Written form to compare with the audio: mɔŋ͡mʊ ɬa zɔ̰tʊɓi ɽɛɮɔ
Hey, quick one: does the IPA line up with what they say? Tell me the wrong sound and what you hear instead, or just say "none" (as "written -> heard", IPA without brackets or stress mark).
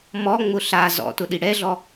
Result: ɓ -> ɗ